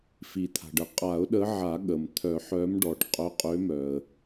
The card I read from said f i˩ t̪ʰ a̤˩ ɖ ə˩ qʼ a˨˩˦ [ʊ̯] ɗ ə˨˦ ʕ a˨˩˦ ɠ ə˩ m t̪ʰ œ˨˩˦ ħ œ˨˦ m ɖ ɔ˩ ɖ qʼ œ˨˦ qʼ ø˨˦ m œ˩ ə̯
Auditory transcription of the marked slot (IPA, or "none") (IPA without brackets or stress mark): ʊ̯